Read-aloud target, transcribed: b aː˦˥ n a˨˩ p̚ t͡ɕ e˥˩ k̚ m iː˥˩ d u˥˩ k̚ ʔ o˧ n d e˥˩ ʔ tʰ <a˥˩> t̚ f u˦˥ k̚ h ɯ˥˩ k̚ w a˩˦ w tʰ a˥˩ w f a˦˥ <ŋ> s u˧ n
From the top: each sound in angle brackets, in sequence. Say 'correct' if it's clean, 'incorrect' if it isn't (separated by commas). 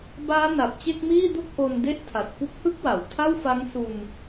incorrect, correct